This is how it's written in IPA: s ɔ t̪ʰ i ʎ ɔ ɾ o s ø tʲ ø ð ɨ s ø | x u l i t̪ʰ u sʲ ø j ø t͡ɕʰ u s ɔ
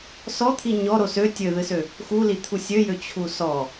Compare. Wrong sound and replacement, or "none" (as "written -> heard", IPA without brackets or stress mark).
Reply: ʎ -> ɲ